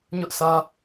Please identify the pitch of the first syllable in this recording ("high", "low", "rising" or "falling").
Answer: high